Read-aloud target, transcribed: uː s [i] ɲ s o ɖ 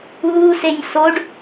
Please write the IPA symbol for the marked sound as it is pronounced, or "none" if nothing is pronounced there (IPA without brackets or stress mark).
e